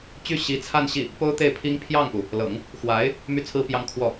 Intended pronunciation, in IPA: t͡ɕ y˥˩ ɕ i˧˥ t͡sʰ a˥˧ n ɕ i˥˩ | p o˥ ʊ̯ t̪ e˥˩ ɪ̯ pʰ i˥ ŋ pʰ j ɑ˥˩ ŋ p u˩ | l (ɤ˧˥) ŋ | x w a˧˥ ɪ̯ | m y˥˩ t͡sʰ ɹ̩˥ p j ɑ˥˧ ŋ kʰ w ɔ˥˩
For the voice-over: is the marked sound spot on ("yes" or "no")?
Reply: no